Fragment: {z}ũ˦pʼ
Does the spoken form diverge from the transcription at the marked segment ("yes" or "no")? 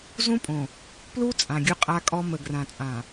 no